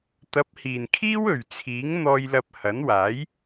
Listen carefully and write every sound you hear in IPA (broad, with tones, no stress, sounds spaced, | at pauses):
t̪ ɐ˨˥ p̚ h iː˨˩ n kʰ iː˥ w ɵ˨˩ ɥ t͡sʰ iː˨˥ ŋ n̪ ɔː˧ j l ɐ˧ p̚ h ɐ˨˥ n w aː˨˥ j